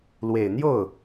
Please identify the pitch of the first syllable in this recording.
low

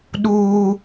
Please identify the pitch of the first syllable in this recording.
high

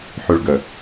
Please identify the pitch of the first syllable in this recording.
low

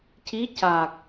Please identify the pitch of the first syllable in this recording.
rising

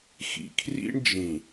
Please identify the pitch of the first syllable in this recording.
low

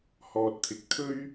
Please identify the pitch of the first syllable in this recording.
low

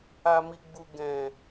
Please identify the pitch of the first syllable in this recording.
low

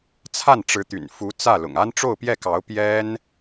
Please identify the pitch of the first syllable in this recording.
falling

